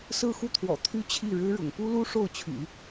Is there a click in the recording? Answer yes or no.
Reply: no